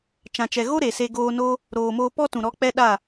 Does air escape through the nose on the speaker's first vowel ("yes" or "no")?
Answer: yes